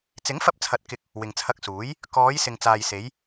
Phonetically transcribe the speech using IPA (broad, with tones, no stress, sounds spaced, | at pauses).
t͡s ɪ˨˥ ŋ f ɐ˧ p̚ t͡sʰ ɐ˨ t̚ k ɪ˧ k̚ | w ɪ˨ ŋ t͡sʰ ɐ˧ k̚ s uː˨˥ j | k ɔː˨˧ j s ɪ˨ ŋ t͡s aː˨ j s e˨˧ j